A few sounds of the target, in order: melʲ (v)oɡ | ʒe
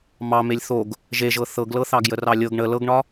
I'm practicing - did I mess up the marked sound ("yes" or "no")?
yes